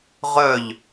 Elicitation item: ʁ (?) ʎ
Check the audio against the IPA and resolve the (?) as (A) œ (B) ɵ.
A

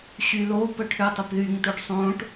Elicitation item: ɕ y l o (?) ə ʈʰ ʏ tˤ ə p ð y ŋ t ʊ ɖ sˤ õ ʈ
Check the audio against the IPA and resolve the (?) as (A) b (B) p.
B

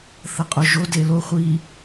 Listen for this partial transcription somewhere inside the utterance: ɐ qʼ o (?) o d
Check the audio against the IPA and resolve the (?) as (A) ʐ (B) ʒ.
B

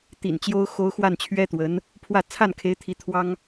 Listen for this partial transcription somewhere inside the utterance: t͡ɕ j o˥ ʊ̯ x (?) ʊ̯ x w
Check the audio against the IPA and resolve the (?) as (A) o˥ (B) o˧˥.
A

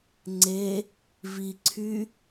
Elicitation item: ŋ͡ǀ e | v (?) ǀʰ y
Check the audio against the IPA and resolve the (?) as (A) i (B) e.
A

